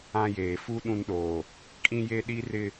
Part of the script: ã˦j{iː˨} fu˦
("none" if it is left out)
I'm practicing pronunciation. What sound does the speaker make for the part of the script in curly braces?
eː˨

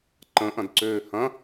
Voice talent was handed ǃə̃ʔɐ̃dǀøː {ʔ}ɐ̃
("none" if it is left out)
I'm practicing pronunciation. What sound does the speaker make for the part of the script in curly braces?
h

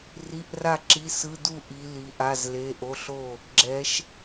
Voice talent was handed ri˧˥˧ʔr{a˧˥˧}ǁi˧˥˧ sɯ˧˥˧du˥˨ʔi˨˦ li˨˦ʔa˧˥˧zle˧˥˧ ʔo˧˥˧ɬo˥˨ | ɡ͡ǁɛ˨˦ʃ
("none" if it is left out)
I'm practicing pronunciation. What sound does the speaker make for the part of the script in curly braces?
a˥˨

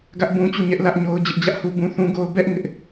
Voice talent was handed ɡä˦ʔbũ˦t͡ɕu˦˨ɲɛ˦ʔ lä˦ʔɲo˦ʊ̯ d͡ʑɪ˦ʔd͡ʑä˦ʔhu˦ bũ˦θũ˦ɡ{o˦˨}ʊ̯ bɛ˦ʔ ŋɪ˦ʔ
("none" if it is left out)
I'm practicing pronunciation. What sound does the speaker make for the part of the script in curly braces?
o˦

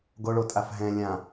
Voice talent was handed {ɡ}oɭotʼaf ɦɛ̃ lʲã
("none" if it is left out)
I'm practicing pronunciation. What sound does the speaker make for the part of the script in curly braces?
ɡ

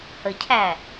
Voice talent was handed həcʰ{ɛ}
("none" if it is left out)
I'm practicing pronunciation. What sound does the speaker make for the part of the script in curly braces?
æ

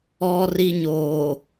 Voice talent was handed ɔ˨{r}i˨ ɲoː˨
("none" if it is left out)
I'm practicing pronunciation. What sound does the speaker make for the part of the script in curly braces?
r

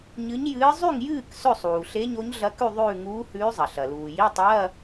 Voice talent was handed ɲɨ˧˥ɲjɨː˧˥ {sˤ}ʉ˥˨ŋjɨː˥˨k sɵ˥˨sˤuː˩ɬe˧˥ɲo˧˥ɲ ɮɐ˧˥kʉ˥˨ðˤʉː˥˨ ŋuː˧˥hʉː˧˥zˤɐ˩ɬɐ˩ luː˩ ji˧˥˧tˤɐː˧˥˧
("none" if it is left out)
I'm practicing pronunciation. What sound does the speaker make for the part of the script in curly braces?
zˤ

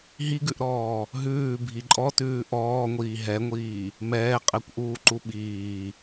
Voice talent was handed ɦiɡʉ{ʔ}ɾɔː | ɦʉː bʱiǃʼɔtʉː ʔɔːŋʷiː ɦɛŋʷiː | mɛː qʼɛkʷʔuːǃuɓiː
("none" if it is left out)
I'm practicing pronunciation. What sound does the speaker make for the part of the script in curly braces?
ʔ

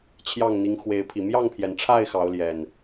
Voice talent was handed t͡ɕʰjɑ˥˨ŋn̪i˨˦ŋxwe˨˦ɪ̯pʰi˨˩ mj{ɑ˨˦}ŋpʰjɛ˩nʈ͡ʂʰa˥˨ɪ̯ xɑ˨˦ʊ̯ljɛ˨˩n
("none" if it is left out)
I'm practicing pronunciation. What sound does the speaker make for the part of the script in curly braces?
ɑ˥˨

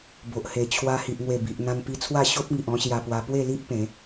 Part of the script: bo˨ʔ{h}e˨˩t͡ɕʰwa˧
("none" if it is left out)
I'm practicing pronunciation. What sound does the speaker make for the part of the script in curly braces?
h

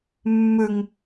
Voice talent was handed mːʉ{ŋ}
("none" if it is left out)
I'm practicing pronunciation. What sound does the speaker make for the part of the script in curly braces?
ŋ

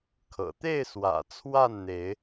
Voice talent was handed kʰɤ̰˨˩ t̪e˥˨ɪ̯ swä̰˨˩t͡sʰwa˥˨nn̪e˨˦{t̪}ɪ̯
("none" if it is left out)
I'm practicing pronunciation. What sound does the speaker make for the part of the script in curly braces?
none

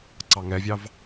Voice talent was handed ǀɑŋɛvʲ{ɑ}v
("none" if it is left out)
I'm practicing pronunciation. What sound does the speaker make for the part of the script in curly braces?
ɑ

